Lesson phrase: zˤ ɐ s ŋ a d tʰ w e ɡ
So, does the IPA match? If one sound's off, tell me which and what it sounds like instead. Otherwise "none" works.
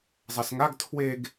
d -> ɡ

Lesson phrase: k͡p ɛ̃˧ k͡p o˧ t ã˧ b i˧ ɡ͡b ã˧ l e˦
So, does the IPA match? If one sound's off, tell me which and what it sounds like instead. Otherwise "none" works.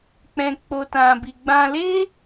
none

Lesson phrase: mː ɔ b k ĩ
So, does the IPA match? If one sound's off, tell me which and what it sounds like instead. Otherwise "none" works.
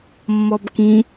none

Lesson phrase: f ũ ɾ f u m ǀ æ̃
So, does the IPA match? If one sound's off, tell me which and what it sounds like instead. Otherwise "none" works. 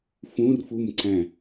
ɾ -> r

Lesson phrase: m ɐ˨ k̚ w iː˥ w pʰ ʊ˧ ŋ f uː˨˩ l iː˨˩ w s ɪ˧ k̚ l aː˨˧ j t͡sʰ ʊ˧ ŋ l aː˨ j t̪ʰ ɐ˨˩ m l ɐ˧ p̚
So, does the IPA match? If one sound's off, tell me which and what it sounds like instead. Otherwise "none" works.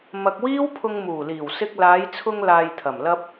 f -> m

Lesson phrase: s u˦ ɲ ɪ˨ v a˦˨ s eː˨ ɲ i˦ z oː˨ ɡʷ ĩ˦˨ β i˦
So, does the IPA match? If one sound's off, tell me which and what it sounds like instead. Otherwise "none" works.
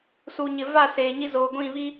u˦ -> u˨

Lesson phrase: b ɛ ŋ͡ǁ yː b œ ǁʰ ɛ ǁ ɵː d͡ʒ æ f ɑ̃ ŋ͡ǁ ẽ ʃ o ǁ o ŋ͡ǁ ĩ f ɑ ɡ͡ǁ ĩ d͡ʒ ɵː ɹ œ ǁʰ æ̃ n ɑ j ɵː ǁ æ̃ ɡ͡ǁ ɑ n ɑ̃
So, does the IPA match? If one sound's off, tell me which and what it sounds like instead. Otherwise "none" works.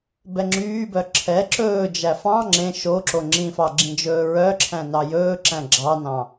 none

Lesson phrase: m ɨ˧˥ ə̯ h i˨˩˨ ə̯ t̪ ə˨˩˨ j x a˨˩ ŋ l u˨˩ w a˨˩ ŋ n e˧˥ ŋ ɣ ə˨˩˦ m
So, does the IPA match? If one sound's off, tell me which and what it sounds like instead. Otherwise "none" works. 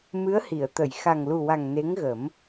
none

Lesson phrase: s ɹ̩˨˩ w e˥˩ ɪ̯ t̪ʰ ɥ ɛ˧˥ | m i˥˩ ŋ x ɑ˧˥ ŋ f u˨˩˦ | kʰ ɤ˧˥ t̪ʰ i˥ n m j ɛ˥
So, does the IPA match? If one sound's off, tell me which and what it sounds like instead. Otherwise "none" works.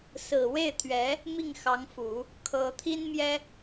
none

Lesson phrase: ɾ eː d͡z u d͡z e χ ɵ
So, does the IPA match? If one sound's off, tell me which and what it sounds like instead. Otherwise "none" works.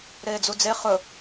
none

